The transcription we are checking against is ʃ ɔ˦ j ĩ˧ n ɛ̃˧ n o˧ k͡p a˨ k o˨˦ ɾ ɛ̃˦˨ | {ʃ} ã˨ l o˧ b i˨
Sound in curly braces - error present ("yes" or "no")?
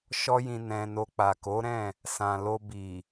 yes